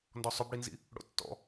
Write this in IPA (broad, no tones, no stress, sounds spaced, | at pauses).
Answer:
n d ɔ sˤ ʏ b ɽ i n z ḭ | ɽ o̰ tː ɔ̰